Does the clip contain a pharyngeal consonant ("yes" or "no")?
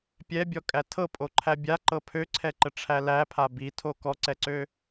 no